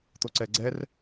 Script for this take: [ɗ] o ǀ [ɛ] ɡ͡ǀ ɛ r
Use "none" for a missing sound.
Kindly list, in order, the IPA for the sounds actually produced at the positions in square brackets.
t̪, ɛ

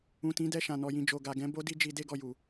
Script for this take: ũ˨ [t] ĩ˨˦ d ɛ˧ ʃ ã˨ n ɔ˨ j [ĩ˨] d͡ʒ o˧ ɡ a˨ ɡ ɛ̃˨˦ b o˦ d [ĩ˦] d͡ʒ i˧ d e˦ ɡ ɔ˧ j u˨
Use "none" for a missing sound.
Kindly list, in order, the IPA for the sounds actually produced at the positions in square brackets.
t, ĩ˧, i˦

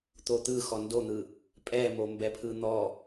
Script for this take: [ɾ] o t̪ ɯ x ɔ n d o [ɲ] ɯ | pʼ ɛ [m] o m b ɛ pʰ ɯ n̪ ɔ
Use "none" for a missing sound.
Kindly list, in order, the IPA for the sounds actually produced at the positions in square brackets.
t̪, n̪, m

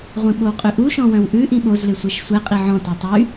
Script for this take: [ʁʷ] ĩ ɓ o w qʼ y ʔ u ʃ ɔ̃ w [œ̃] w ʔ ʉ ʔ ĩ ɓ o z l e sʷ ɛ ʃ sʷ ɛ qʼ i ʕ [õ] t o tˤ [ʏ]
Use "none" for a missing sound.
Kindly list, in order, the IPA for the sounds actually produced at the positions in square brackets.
ʁʷ, œ̃, ɔ̃, y

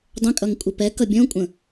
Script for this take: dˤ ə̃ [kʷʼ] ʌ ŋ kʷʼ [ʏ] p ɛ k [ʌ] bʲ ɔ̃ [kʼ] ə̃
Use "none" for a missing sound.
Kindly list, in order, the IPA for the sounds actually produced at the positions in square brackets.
kʼ, ɪ, ʌ, kʷʼ

